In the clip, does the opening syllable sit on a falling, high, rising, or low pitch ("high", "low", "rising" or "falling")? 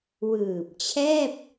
low